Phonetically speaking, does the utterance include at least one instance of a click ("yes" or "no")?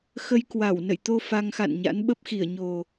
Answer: no